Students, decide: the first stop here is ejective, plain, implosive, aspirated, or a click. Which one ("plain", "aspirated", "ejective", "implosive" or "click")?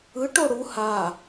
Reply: plain